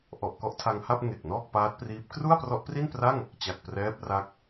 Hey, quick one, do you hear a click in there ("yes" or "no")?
no